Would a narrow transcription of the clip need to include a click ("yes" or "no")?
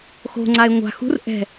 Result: yes